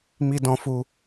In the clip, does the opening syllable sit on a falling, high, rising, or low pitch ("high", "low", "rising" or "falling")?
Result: high